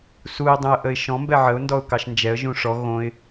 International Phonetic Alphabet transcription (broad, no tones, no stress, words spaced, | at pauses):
suɪ̯ dˤũə̯ʔəɪ̯ʃɔ̃ mbɛʕəʊ̯ ndɔʊ̯kɑʃnd͡ʒɛə̯ ʒũʂɔ ɣõɪ̯